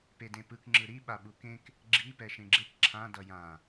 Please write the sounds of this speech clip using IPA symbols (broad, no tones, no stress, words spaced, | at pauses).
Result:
pedẽpɯk ŋ͡ǁɯɾi ɓaɓukẽk | ɡ͡ǁi pɛʃẽɡ͡ǁek ǁʰã dʌjã